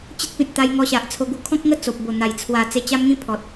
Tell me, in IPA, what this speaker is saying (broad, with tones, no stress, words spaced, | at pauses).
t͡ɕə˦t̚pĩ˨t̚ t̪a˧jŋɔ˧ɕa˨ʔ t͡sʰo˧ɡu˧kʰɔ̃˦k̚ŋə˥˧ t͡so˨p̚bo˨˩n̪a˨˩j t͡sʰwa˨˩ t͡se˧t͡ɕa˦mŋĩ˦ pʰɔ˨t̚